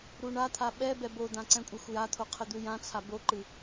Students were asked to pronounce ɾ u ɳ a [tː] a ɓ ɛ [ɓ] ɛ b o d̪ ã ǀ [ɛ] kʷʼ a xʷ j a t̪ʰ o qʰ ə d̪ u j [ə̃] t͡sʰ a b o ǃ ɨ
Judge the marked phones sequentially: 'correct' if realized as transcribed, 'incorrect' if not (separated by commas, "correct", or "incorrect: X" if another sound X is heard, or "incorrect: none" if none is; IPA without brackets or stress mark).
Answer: incorrect: t̪ʰ, incorrect: b, incorrect: ɛ̃, incorrect: ã